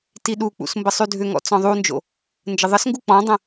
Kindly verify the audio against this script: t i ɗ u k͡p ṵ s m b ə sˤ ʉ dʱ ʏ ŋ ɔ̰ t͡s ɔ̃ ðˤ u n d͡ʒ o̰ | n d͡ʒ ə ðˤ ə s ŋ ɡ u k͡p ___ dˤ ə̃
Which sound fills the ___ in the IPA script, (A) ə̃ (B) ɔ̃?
B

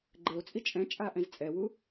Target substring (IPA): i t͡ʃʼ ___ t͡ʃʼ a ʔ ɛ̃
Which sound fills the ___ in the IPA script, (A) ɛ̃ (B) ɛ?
A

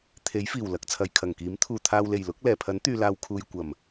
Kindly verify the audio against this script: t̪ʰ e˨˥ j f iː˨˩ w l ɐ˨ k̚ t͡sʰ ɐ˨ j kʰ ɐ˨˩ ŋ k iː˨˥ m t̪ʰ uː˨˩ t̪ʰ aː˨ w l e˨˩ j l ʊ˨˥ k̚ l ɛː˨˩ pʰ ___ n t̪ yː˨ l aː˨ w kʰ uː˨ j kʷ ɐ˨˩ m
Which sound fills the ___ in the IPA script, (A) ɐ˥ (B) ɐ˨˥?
B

